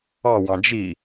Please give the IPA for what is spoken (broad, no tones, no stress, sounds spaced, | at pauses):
ɑ w ɑ̃ d͡ʒ i